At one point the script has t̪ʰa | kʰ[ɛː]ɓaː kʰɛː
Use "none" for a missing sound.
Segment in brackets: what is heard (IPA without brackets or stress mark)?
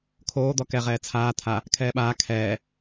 ɛː